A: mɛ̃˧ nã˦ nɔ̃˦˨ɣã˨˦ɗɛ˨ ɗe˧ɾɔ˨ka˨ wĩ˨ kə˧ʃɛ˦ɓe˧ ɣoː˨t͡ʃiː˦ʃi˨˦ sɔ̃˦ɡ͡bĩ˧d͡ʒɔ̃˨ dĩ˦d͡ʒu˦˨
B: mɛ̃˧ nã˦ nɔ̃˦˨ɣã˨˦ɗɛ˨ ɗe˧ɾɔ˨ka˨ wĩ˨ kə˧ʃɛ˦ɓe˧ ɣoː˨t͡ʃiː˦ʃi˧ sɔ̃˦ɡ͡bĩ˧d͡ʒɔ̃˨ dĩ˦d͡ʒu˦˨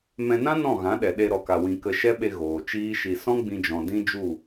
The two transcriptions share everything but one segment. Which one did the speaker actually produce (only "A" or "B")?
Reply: B